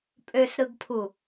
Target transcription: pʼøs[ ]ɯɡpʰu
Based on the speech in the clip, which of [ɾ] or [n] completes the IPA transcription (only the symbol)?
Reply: ɾ